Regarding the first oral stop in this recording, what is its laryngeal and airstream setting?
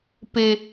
plain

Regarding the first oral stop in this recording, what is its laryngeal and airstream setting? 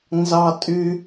ejective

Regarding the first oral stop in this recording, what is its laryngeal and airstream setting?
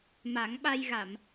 implosive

